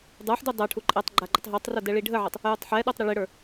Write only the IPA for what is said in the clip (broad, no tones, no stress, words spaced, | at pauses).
dˤə˞ħdu dˤɤʈʰu ǃʼɛtˤɡ͡ǃa ɡ͡ǃətˤɦə˞tˤro dɛɭiɖʱəʕɘtˤ | jutˤħɛɗotˤ ɾɪɭɪɽə˞